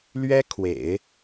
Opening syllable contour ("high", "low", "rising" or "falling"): high